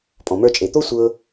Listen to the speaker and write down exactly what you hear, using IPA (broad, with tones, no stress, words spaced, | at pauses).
pʼɔ̃˩mə˞˧t͡ʃʼe˩t̪o˥ sʷɤ˧